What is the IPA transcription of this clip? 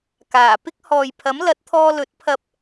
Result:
kaː˨˩ pɪ˥k̚hɔː˨j pʰɐ˨˥mlɐ˨˥t̚t̪ʰɔː˧lɵ˨˥t̚ pʰɐ˧p̚

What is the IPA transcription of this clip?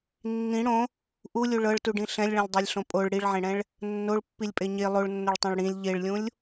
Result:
nːĩ ɽõ | ʔulʲu ɭɤɭtuɖĩ ɬɛ̃lʲɭɛ̃lʲdˤɛlʲɬõ pʼoɭ ɽiɭʕẽɽɛ̃ɭ | nːoɭpːilʲpʼe ɲe lˠoɭnːoɭtˤɛ̃ɭ ɽĩlʲ ʎeɭlʲũlʲ

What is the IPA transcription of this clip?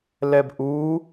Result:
lɛbʔuː

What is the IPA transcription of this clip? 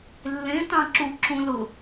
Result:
lːẽ tɑ̃ǁu ǁũlʊ

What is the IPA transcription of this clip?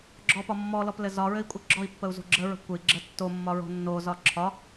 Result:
ɡ͡ǁɔpɒ mːɔlɔplɘ zɒɹɘi̯kʷʼɘ ɡ͡ǁɔi̯pːəu̯zo̤ ɡ͡ǁəɹə̤ kʷɘi̯ɡ͡ǁə tːomːɒɹo̤ nːozɒ ǁʰɒ

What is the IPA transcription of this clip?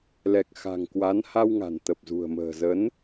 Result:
lɛ˨˩k̚xa̤˨˩ŋkwa˨˦n ha˧wŋa̤˨˩nt̪ə˨˩p̚zṳ˨˩ə̯ mə̤ː˨˩zə˨˦n

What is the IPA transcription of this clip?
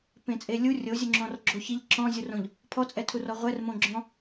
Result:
pẽt͡sʼelʲu rʲozʲuŋ͡ǁɔ̃r ɡ͡ǁoçiʎ ǁɔ̃zʲurõʎ | pʰɔt͡sʼɛtʰur ɔʁʷɛr mõɡ͡ǁɔ̃

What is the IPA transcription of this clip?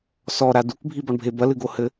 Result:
sɔɾa dukbʱibɔɳbʱe bɐlɨɡohɘ

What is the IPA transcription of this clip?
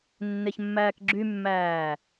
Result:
nːeçmːæːkɡ͡ǁymːæː

